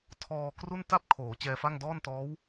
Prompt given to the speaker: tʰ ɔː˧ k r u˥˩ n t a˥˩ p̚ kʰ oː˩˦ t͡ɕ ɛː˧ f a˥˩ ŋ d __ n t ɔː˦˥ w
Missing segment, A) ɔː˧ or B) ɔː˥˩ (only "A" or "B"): B